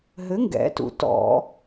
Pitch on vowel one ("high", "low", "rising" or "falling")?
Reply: rising